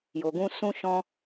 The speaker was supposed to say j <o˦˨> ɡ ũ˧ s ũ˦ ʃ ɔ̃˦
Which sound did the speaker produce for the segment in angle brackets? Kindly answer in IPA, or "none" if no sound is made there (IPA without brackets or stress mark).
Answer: o˨